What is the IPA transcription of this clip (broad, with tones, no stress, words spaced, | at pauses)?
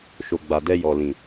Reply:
ʃo˨ɡ͡ba˨dɛ˧ jɔ˨lĩ˨